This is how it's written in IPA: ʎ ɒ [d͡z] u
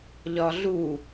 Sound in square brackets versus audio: incorrect: ɮ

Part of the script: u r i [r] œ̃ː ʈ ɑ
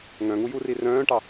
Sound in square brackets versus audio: correct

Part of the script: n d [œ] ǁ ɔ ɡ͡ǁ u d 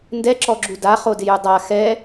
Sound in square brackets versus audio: incorrect: ɛ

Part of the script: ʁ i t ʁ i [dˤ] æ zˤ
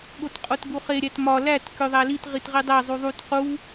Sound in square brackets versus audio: correct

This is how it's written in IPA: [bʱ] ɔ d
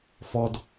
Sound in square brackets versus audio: incorrect: f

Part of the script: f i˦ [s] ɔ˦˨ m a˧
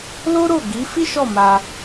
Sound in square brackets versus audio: incorrect: ʃ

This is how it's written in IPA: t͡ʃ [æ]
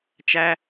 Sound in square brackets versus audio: correct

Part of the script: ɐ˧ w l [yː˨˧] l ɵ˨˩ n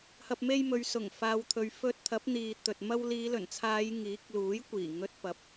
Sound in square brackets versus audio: incorrect: iː˨˧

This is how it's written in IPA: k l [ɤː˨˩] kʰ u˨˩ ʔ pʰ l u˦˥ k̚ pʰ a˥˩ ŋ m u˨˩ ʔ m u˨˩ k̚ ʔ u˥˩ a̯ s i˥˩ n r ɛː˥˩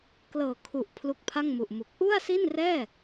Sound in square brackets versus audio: correct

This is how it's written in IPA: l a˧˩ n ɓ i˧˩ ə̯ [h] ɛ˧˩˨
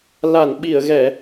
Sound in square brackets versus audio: incorrect: ɣ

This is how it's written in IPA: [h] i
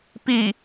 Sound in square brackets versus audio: incorrect: p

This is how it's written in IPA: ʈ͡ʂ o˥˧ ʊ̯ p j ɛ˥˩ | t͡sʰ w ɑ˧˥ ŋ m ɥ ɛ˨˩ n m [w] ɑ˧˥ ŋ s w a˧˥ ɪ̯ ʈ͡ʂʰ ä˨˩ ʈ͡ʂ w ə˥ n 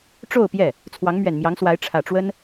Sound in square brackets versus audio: incorrect: j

